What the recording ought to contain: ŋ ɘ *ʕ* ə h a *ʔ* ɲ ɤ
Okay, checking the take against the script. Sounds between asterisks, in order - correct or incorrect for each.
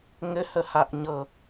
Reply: incorrect, correct

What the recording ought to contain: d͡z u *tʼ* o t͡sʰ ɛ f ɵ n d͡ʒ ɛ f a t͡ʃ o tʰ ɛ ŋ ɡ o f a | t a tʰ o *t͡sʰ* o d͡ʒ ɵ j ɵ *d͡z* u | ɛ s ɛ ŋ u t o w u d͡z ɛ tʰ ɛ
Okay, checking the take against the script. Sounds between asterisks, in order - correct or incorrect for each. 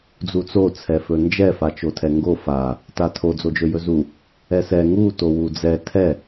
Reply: incorrect, incorrect, incorrect

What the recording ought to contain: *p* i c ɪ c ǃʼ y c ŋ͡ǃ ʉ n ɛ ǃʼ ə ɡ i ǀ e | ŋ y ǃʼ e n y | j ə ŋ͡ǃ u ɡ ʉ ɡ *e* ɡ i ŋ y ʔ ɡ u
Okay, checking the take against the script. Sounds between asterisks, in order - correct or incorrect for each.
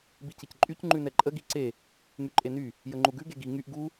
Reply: incorrect, correct

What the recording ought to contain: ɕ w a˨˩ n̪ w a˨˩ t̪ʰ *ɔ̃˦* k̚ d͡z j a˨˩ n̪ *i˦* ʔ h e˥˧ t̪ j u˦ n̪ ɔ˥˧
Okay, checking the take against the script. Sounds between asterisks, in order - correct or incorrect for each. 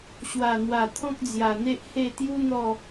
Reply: correct, incorrect

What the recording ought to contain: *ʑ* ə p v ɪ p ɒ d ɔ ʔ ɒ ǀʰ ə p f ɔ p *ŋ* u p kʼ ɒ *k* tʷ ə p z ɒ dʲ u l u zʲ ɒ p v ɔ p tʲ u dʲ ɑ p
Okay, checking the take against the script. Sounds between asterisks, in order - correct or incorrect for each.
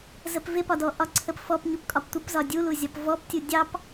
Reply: incorrect, incorrect, incorrect

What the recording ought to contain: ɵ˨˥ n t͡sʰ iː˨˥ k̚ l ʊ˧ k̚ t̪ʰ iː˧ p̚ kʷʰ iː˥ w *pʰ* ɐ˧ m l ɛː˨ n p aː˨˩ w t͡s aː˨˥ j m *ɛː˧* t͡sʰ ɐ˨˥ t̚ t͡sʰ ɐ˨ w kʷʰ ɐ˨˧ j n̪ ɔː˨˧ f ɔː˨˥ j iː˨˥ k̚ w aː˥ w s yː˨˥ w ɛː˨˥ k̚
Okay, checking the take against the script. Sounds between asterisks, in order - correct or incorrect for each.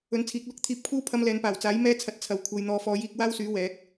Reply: correct, correct

